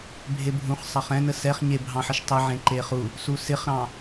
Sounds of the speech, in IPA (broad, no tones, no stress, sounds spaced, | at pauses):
bʱ e bʱ ũ χ sˤ ɑ χ ɛ̃ n ə s ɛ χ ɲ e bʱ ɑ̃ ħ ə ʃ tˤ ə ʕ ẽ ǃ e χ u | s u s ɪ χ ɾ ɑ̃